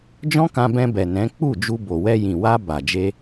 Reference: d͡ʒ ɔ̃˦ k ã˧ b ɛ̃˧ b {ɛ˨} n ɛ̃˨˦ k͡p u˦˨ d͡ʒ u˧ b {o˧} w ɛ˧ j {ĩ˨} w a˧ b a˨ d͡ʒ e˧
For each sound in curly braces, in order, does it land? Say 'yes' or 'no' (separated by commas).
yes, no, yes